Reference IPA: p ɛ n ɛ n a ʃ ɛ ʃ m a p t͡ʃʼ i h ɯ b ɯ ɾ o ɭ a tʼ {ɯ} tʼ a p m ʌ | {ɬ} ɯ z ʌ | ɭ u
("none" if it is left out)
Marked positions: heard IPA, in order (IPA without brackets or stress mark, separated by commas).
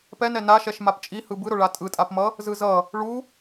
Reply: ɯ, z